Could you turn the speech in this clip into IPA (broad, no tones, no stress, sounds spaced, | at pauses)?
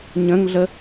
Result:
ɲ ə̃ ŋ ɮ ə